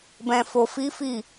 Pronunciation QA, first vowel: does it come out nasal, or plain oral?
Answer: nasal